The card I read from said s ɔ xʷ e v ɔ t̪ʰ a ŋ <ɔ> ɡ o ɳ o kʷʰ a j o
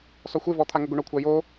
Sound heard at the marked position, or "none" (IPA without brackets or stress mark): ɤ